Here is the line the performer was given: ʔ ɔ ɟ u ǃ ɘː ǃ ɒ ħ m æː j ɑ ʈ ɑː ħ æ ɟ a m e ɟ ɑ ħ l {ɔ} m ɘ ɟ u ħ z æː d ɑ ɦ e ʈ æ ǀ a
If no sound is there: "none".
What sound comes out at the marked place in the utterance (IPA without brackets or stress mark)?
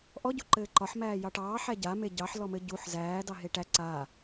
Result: ɔ